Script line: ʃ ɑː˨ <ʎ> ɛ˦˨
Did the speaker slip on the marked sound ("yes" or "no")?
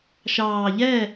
no